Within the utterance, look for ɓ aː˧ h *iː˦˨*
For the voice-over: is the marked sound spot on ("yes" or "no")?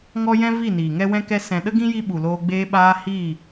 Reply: yes